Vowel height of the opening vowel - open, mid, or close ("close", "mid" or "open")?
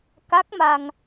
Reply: open